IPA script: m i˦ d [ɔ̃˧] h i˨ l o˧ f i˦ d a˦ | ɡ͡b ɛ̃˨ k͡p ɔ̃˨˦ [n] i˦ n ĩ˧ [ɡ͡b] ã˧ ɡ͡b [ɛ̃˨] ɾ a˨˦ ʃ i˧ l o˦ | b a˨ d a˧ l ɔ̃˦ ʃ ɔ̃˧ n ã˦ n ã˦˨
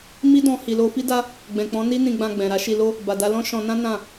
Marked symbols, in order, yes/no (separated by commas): yes, yes, yes, yes